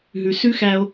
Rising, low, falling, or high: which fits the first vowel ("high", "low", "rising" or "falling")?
low